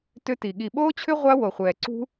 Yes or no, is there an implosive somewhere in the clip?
yes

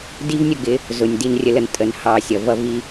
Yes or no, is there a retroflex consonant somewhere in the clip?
no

